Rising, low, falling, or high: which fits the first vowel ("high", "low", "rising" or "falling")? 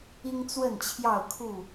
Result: high